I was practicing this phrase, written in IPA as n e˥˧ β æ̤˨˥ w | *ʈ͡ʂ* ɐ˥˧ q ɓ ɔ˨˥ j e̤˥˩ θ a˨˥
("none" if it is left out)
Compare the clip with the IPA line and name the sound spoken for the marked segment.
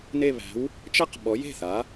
t͡ʃ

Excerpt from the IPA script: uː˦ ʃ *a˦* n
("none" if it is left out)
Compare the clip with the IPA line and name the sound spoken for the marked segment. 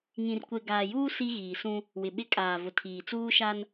a˦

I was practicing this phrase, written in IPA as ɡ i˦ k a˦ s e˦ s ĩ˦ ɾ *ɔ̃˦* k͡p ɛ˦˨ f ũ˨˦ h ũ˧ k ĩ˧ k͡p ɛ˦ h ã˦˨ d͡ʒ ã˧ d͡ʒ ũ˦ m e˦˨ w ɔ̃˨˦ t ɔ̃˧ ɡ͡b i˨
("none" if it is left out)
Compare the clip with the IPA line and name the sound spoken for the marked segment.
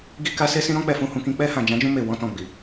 ɔ̃˦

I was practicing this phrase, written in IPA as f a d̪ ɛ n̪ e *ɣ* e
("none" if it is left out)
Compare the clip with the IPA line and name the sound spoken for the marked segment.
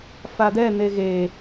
ɣ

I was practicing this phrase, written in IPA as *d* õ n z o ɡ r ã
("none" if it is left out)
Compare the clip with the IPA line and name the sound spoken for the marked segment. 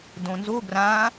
d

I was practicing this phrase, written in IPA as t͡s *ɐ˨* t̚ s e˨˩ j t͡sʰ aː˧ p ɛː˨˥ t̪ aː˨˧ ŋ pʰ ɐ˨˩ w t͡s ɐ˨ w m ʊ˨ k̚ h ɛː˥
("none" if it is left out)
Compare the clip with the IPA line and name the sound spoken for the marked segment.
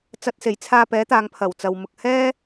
ɐ˨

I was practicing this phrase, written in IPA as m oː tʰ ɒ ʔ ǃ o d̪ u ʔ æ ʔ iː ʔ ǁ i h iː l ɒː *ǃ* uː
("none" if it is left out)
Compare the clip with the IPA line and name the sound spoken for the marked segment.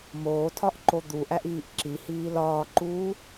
ǃ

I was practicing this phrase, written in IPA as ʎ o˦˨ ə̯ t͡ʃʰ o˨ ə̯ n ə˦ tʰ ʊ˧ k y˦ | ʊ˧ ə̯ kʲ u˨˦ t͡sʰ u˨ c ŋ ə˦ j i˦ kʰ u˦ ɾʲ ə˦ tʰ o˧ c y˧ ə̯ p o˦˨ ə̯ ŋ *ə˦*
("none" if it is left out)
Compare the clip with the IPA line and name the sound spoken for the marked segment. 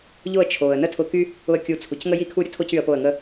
ə˦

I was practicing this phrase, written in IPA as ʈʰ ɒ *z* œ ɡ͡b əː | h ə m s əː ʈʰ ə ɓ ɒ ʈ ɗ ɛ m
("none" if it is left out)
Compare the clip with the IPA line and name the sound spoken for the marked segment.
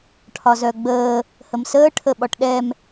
z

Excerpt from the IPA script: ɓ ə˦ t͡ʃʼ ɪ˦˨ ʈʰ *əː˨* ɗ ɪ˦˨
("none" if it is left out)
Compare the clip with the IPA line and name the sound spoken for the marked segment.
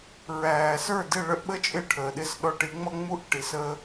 əː˨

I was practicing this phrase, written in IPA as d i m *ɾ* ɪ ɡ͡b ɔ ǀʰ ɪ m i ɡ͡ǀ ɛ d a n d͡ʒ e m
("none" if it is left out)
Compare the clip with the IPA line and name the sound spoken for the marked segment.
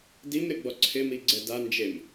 ɾ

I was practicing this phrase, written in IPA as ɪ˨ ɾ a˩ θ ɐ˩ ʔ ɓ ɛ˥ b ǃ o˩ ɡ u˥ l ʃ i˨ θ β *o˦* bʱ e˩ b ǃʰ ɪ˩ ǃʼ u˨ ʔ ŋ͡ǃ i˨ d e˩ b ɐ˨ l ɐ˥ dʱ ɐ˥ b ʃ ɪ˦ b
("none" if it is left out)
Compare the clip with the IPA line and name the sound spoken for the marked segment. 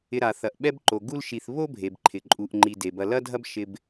o˥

